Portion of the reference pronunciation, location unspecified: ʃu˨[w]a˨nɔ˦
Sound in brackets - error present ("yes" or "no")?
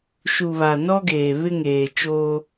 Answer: yes